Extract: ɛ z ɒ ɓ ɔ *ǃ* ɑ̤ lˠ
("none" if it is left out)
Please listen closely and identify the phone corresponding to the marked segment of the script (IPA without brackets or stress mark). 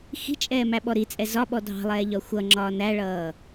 dʱ